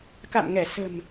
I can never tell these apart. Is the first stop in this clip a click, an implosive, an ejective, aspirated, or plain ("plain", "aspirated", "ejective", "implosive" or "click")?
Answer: plain